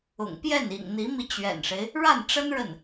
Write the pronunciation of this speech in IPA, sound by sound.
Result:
ʊ̰˨˩ŋpjɛ˥˩n ḭ˨˩ŋn̪i˧˥mi˧ t͡ɕɥɛ̰˨˩nʂe˦ɪ̯ | ɻa˥˩nʈ͡ʂə˥n ɻə˥˩n

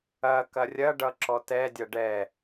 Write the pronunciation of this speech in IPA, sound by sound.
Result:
ɐkɐ rʲɐɖʌ ǁɔtɛdʲʌ ɖɛ

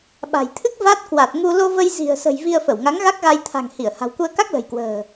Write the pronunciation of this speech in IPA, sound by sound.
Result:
ɓa̤˨˩jt̪ʰɨ˦˥k̚ va˦˥t̚ kwa˨˩t̚ŋu˧ lo˧və˧jzi̤˨˩ə̯sə̤˨˩j vi˧ə̯fə˧˩wŋa˨˦ŋ ɣa˦˥k̚ɣa˧jt̪ʰa̤˨˩ŋhi˧˩ə̯ ha̤˨˩wku˧ə̯ka˦˥k̚ lə̤˨˩jkwə̤ː˨˩

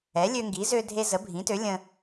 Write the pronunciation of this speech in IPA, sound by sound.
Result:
ɛ˩˥lʲø˧ŋɡi˩˥ zø˧dʱe˧ zə˩˥bʱĩ˩˥tø˩˥ lʲə̃˧

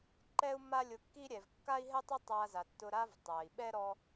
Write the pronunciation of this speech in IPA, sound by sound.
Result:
ǃɛ˥u̯mːa˥lʲʊ˧kːi˥ ɾʲɛ˩vkːa˥i̯ɦɛ˥tˤʊ˥ tˤa˧za˩tːʊ˧ ɾa˥v tˤa˩i̯ɓɛ˥ ɾɔ˧

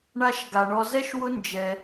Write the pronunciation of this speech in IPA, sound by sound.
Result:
ɳa˦ʃɡa˧ ɳɔ˧zɛ˦ʃwʊ˦ nd͡ʒɛ˧

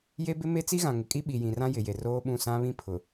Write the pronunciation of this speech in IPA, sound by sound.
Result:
je˦bɪ˦ me˦t͡si˦ɣã˨ ŋɪ˨kʼi˦ ɓi˨jĩ˨rã˦ jɪ˨je˨roː˦ɓũ˦˨ sã˦βĩ˦pʰʊ˨

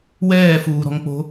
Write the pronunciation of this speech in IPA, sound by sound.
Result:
wɛːfuːɾɔ̤ŋk͡po̤

